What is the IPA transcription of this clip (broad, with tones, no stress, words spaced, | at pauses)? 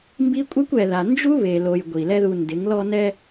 mbi˦kʷʼɛ˦kʷ ɛ˨ða˨nd͡ʒu˦ βe˨lo˨j ɡʷi˨lɛ˦ðu˧ndɪ˨˦ŋ lɔ˧ nɛ˧